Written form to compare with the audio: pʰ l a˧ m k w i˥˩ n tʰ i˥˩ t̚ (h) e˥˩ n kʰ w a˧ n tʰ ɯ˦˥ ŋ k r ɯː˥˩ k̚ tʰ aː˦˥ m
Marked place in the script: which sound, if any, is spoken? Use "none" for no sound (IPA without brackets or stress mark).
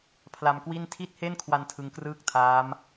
h